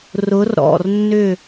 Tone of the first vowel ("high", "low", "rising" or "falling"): rising